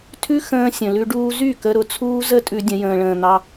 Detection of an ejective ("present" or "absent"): present